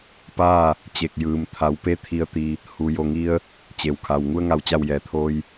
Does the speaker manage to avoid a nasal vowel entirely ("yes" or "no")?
yes